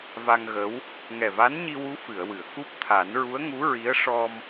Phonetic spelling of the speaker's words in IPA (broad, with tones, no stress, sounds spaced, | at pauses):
v a˧ ŋ ɣ ə˧˥ w | ŋ ɛ˨˩ v a˧˥ n ɲ i˧ w u˧˥ f ɨ˨˩˨ ə̯ w ɨ˨˩˨ ə̯ k u˦˥ p̚ t̪ʰ a˨˩˦ n ɹ u˧˥ ə̯ ŋ u˧˥ ɹ i˧˥ ə̯ ʂ ɔ˧ m